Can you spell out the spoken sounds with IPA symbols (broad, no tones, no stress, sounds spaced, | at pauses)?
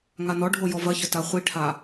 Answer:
ŋ a n ɔ ɖʱ o j ɔ v ɐ ç ɘ t a χʷ i ʈʰ a